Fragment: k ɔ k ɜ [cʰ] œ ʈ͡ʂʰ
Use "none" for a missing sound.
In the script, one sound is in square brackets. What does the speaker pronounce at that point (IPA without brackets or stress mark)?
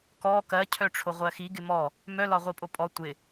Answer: cʰ